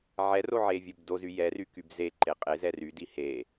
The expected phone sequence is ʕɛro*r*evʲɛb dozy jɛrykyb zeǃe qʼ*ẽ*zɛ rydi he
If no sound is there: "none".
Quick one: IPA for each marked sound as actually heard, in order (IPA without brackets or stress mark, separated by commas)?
ʕ, e